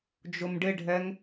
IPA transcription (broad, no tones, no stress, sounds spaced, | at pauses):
d͡ʒ ʊ m ɖ ɪ ɖʱ ɛ ŋ